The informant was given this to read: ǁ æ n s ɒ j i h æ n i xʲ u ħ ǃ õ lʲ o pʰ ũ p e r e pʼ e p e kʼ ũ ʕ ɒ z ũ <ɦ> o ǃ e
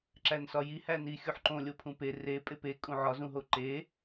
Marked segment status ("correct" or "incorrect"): correct